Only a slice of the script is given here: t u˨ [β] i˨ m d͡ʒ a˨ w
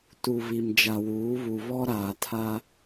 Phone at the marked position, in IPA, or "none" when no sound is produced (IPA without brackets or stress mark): β